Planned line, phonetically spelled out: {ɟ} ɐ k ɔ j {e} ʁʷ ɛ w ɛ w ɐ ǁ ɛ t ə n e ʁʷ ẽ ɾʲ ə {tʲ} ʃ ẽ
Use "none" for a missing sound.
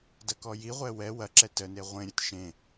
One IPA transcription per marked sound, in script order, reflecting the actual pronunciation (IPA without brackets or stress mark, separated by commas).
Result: d, i, t